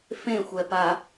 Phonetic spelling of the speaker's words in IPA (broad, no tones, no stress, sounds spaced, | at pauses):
f ẽ xʷ ɛ p a